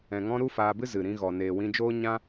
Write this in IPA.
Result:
ɛ̃˨ŋɔ̃˧ ɾu˦faː˧bɨ˦ zɨ˨ɾĩ˧ ɣɔ˨ neː˨wĩ˧d͡ʒoː˦ ɲã˦

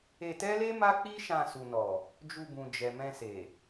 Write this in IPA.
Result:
e˧tɛ˦le˦ ma˦k͡pi˦ʃã˧ su˨nɔ˨ | d͡ʒu˧bũ˨ d͡ʒɛ˨mɛ̃˧ se˨

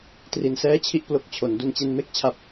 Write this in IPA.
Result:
tri˧nsɛː˥˩t͡ɕʰi˥˩ʔ plo˦˥k̚t͡ɕʰo˩˦n du˧nt͡ɕe˦˥n me˥˩k̚t͡ɕʰa˦˥p̚

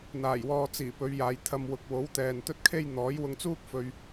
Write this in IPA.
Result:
n̪aː˨˩jwɔː˨t͡siː˨˩ pɵ˨˧ɥjaː˨jt̪ʰɐ˧mwʊ˨˥k̚ wo˨˥wt̪ɛː˨n t̪ɵ˥t̚kʰe˥j n̪ɔː˨˥jwʊ˧ŋt͡suː˥k̚ fɵ˧ɥ

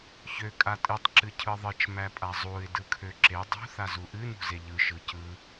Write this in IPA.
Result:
çø kʼatʼɨtˤ ǁɨcʰɯðˤɨt͡ʃ mæpʼazˤuɪ̯ dɯkʰøǁe dˤṳ θazuʔɨ nṳzeʎɯ ʃɯcɯ

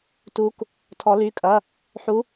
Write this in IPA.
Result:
tu˧˥k | tʰɔ˧˥ly˧˥˧kʼɐ˧˥˧ | ħu˧˥

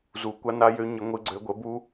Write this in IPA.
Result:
zu˨˦kʷa˦na˦jø˦ ɲə˦ŋʷɨ˦ɡ͡ǀø˦ ɡʷə˨˦bu˦

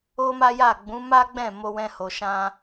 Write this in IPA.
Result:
o˦ma˦ja˦˨ ɡ͡bũ˨˦ma˦ɡ͡bɛ̃˦˨ mo˧wɛ̃˧ho˨ʃã˧

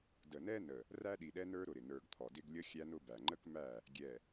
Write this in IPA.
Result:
də˨nɛ˦nə˨ | ræ˦ɗi˨ɗɛ˦nə˞˦ ɾʊ˨ɾɪ˨ nə˞˨ɡ t̪ʰɔ˨dɪ˦ɡ lʲʌ˦xʲæ˦nʊ˦bæ˨ ŋ͡ǃə˦kmæ˦˨ | ɡʲɛ˨

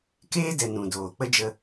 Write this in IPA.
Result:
keː˦dɛ˨ nũ˨doː˨ k͡pə˦d͡ʒə˧

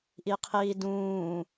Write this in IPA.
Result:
ʔiqʰiːdũː

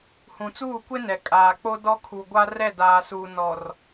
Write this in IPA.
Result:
hũ˨t͡suː˦˨kʷe˦ nɛ˨kʼaː˨k͡po˦ dɔ˦kʰu˨ ɡʷa˦rɛ˦˨ daː˨suː˨ nɔ˨r

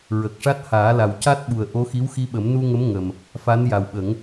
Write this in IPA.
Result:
ɹə˨˩k̚ ʂa˦˥t̚ haː˨˩˦la˨˩wca˦˥t̚ɓu˨˩ə̯ ʔo˧˥xi˧˥wxi˧ɓə˨˩˦m nu˧ŋə˧˥m ŋə˨˩m | fa˧˥nja˨˩wɓə˨˩˦ŋ

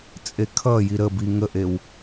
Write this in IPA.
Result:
t͡sʼekʰʌji ɾəbi ŋəʔew

